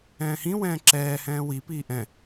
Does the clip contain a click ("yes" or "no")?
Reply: yes